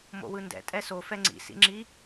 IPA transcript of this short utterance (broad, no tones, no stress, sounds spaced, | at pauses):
m o̰ w ɯ n d ɛ̰ tʼ ɛ s o f ɛ ŋ͡ǀ ḭ s ḭ ŋ͡ǁ i